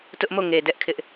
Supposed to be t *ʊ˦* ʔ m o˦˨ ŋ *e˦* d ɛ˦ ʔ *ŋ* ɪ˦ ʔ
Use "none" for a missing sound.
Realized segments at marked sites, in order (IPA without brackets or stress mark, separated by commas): ʊ˦, e˨, kʰ